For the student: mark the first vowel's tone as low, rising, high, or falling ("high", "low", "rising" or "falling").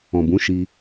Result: low